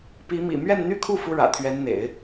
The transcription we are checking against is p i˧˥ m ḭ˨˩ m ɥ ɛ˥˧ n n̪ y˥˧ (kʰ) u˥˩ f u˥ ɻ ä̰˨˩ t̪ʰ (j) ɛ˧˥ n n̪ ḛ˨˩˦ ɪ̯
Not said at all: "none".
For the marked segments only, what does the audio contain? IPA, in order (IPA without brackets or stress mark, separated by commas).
kʰ, ɥ